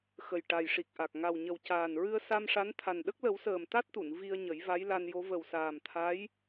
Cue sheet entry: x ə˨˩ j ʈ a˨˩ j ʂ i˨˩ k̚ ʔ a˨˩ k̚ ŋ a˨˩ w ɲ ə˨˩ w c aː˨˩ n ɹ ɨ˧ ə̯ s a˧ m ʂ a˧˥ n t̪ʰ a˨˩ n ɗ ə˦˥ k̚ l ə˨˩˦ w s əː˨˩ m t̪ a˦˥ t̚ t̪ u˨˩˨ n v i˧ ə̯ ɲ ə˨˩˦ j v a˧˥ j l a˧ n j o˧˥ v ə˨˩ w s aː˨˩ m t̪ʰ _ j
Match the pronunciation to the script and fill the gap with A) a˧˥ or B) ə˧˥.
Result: A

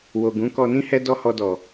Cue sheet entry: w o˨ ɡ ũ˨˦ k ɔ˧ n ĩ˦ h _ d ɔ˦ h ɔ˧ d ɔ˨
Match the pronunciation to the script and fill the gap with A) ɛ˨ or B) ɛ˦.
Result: B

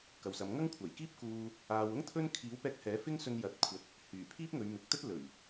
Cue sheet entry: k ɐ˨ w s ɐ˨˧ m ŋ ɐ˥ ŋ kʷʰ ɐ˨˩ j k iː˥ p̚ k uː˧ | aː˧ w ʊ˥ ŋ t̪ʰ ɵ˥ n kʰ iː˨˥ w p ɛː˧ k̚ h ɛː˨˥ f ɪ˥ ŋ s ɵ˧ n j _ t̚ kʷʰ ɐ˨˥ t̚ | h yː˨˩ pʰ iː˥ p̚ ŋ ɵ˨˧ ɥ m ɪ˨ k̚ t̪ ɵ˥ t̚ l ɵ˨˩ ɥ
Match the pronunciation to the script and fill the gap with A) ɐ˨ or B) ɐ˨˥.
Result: A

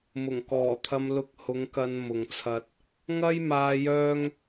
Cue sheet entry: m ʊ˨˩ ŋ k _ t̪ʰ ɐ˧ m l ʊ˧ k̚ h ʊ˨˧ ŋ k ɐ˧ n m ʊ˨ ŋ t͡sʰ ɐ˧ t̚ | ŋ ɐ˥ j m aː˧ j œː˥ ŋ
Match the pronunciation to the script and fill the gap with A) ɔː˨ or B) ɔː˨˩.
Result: B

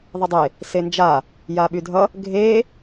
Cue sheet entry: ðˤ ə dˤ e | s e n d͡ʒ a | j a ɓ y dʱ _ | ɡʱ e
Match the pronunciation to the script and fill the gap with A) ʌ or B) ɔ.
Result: A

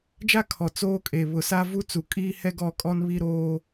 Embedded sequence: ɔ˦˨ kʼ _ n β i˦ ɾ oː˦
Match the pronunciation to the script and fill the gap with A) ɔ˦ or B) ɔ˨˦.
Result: A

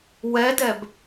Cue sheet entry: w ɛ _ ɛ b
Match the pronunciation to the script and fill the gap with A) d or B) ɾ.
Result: A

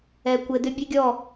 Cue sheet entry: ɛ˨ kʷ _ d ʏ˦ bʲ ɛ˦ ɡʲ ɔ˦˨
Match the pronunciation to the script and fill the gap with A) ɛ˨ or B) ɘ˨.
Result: B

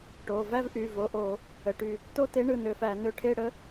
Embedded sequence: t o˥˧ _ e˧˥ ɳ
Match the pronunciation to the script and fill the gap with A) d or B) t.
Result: B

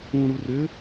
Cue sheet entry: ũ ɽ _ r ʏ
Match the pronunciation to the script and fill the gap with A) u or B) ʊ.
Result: A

